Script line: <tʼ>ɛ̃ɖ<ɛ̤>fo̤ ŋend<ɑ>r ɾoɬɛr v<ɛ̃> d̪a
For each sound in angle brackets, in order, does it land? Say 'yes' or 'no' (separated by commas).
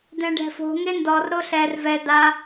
no, yes, no, no